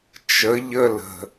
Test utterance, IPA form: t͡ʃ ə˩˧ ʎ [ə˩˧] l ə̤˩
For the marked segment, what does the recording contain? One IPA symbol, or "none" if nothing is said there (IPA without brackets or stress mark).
ə˧